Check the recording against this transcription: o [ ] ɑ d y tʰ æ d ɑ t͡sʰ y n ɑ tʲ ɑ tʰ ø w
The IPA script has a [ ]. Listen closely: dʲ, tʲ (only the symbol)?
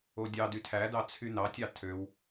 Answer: dʲ